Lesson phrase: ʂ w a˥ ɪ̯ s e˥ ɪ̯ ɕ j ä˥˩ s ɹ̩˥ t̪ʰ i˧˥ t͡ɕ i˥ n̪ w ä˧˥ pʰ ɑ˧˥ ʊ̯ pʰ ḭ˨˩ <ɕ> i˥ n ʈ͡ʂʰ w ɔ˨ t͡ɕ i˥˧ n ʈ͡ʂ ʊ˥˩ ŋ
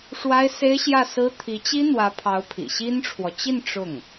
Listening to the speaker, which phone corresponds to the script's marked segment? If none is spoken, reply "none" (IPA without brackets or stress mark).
ɕ